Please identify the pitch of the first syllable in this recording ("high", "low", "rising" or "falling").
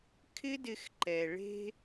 high